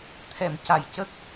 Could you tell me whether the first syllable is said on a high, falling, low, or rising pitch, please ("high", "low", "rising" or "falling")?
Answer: low